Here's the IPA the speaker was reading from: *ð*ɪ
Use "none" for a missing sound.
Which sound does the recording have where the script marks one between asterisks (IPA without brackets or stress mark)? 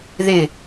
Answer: ð